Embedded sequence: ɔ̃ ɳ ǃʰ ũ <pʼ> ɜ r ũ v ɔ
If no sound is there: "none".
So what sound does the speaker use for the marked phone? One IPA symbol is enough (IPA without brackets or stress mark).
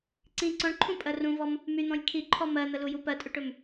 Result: pʼ